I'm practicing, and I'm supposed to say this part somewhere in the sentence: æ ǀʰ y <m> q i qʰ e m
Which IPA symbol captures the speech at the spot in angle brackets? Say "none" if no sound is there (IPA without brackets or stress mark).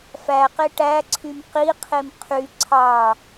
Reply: m